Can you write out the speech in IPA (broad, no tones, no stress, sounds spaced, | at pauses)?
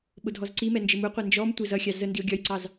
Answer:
ɓ ʊ dʱ ɔ z ǀ i m ɛ n d͡ʒ ɪ m u qʷ æ n d͡ʒ ɔ m tʷ ɪ z ʌ xʲ ɑ z ə n d i o̯ ɡʲ ɒ j ǀ ɑ z